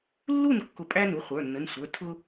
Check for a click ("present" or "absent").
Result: absent